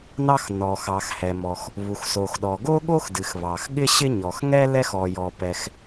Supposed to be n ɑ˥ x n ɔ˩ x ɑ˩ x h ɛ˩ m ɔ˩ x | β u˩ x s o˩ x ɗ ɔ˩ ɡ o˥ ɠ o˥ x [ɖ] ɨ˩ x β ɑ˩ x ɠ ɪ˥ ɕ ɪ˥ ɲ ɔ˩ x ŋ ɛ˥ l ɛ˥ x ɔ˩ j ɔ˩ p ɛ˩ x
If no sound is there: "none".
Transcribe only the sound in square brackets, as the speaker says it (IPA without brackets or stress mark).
d